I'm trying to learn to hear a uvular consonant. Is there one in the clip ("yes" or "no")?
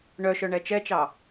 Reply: no